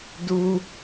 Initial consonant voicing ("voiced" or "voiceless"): voiced